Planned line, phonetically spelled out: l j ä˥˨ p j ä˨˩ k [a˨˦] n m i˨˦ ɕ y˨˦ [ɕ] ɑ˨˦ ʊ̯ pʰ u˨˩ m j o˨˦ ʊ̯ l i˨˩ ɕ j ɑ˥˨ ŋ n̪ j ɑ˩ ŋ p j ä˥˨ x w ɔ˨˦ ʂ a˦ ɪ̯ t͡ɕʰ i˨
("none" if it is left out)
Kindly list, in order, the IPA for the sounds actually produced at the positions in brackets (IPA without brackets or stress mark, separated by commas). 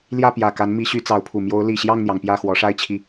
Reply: a˨˦, t͡s